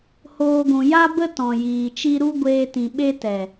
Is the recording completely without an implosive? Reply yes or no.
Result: no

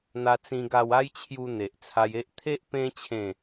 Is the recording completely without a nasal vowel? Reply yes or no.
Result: no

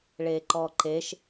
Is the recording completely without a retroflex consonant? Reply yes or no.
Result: no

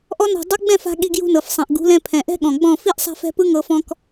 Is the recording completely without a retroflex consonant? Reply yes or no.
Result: yes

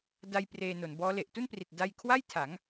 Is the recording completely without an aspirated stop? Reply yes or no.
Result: no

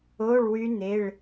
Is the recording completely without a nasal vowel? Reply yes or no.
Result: yes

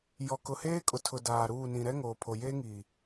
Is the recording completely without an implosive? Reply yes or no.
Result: yes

